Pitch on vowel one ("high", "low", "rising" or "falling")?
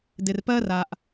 low